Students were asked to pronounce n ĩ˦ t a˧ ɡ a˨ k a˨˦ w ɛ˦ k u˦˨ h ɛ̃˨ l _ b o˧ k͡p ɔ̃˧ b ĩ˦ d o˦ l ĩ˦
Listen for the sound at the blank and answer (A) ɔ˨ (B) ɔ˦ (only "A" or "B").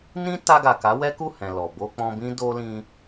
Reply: A